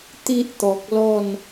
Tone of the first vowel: high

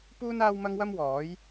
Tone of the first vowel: high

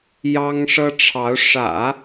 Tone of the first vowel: high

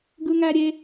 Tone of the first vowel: high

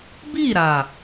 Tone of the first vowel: falling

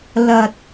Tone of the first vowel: low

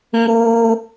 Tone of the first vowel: high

